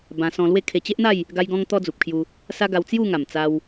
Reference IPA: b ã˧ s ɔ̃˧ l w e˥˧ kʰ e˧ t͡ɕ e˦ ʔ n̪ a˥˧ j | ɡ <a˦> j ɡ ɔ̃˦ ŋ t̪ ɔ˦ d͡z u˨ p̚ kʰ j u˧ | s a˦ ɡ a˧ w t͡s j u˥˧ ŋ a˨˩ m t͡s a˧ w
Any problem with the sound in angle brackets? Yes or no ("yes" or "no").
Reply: no